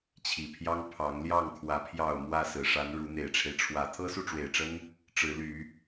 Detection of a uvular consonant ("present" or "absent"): absent